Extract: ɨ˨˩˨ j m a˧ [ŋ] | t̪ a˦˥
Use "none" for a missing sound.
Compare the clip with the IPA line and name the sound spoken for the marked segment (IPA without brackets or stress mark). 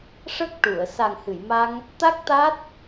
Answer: ŋ